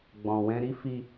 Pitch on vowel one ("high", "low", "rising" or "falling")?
low